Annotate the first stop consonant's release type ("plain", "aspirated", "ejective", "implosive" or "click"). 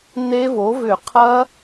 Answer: aspirated